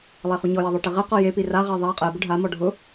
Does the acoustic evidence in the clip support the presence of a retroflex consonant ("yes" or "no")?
yes